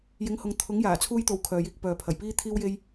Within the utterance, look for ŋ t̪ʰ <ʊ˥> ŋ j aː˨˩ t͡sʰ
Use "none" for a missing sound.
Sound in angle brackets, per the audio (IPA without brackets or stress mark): ʊ˨˥